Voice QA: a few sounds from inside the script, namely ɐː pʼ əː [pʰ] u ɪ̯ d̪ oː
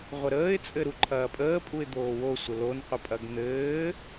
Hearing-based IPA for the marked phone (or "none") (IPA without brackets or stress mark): pʼ